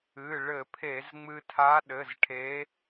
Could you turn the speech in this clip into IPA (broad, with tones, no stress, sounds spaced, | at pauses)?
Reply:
ɨ˩˧˩ ɭ ɘ˧˩˧ pʰ e˧˩˧ z ŋ͡m ɨ˧ tʰ a˧˥ ɗ ɘ˩˧˩ z ʈʰ e˧˥